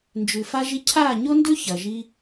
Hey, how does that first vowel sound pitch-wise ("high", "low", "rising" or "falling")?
low